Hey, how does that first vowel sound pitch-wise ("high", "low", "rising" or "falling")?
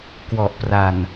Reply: low